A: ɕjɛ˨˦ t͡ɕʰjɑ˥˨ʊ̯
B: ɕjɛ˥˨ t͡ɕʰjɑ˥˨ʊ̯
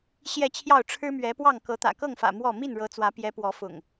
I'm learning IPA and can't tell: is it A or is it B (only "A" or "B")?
B